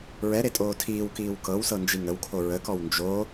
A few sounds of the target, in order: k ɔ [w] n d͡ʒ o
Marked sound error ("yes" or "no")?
no